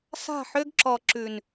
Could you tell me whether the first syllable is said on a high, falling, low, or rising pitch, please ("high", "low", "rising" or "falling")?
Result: falling